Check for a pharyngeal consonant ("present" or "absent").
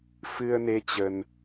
absent